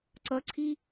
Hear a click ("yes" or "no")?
yes